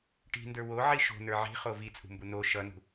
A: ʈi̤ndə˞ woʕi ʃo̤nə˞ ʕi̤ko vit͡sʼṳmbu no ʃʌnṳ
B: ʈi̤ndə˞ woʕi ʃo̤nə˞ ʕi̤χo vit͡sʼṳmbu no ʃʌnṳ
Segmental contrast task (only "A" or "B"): B